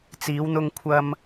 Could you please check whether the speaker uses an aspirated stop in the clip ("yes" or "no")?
yes